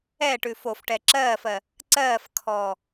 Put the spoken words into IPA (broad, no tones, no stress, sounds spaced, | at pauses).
ɛ ʈ ʉ f o f ʈ ɛ ǁ ɜː f ɜ | ǀ ɜː f kʰ ɔː